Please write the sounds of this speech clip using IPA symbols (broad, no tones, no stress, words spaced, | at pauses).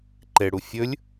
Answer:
ǃeɽu fʲɵlʲ